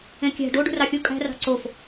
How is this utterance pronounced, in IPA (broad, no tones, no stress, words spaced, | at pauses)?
ẽkʲæ̤ ɖo ɖṳrɑxʲu kʼæ̤rɑ̤ ǀof